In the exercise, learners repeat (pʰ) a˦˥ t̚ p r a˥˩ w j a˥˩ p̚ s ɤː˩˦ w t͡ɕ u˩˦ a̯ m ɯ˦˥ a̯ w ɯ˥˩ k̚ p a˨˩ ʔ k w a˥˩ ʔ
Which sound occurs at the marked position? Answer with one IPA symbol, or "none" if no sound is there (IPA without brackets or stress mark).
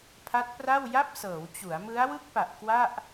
pʰ